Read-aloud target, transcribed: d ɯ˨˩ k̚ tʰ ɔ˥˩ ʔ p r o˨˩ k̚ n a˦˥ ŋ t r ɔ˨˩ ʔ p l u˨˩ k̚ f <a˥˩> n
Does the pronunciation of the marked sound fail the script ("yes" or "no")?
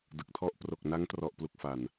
yes